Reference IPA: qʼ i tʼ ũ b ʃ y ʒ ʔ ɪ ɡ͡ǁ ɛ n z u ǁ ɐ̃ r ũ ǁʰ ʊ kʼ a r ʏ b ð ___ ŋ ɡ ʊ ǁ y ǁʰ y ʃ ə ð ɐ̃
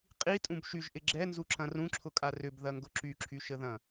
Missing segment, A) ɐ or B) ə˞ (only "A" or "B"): A